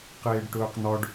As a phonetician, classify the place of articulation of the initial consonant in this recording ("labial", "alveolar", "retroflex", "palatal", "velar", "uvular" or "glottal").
uvular